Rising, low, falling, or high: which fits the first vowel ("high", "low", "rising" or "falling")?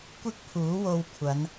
high